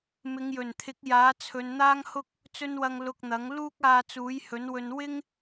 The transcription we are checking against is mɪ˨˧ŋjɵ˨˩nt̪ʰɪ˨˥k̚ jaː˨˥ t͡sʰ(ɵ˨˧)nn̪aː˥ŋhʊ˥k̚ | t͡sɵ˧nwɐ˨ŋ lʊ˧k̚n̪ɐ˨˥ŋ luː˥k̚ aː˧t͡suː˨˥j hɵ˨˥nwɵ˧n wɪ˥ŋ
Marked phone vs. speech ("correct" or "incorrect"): correct